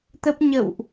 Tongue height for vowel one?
mid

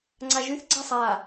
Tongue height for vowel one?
low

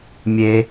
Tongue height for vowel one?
mid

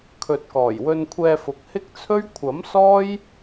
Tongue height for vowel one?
mid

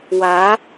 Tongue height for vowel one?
low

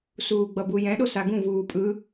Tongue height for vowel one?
high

